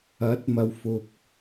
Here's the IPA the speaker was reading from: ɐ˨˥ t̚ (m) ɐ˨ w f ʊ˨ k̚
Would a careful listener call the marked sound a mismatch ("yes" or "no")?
no